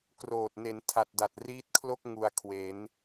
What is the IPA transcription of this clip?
kroː˨˩t̚ ne˩˦ntʰa˨˩t̚da˨˩t̚ riː˦˥t̚kʰlo˥˩k̚ ŋu˧a̯ kʰwe˩˦n

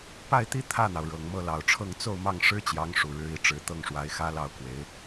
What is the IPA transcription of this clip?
pa˥˧ɪ̯t̪i˥˧ t̪ʰä˥˩n̪ɑ˩ʊ̯ ɻɤ˨˩ŋmɤ˥˩lɑ˨˩ʊ̯ʈ͡ʂʰɤ˥˧ŋ t͡so˥˧ʊ̯ mɑ˥˩ŋʂɻ̩˥t͡ɕjɑ˧˥ŋ ʂu˨˩ɻɻ̩˧˥i˧˥ ʈ͡ʂɻ̩˧˥t̪ɤ˥˩ŋʂwa˧˥ɪ̯ xä˥lɑ˥˩ʊ̯kwe˧˥ɪ̯

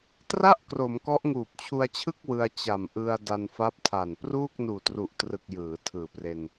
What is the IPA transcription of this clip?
tra˥˩ʔ kro˩˦mkɔ˦˥ʔ ŋuː˨˩p̚t͡ɕʰu˧a̯t͡ɕʰɯ˥˩k̚ wɯ˧a̯t͡ɕa˨˩mʔɯ˧a̯ da˧nfa˦˥p̚tʰa˨˩n pruː˥˩k̚nuː˨˩tru˨˩ʔtrɯ˨˩k̚ jɯː˩˦tʰɯː˨˩pre˧n

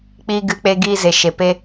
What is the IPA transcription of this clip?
k͡piː˧ɡɨ˧k͡pe˧ɡiː˧ ze˨ʃe˨ pe˧

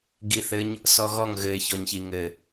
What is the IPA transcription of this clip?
ɡiθɘɲ | sɔɣɔŋ ɣɘɪ̯çɔɲçi ŋɘ

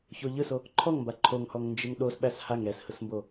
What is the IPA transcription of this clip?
çoʎɯso | ǃʰɔŋmba ǃʰoŋhɔŋ nd͡ʒɯŋɗos ɓæshaŋ ɾɛshɯsmbo

